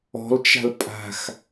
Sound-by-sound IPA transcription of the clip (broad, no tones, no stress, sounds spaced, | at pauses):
ɔ̤ l t͡ʃ a̤ l pʼ a̤ x